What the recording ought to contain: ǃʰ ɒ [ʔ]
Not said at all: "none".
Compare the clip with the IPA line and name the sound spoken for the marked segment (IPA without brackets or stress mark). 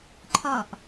ʔ